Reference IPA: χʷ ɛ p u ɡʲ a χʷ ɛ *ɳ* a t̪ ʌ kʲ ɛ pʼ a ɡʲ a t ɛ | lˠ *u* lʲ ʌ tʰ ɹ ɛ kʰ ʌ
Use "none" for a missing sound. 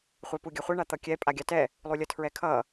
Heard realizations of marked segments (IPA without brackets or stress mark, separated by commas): ɳ, u